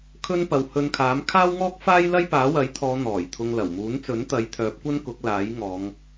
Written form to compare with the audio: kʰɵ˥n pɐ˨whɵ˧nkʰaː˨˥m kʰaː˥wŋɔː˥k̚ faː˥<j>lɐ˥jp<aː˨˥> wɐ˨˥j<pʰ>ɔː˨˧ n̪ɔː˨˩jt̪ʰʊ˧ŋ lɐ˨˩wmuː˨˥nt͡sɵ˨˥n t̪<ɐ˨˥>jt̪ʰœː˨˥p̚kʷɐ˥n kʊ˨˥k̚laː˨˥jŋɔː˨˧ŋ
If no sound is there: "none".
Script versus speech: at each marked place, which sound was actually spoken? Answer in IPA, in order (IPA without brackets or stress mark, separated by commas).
j, aː˨˥, t̪ʰ, ɐ˨˥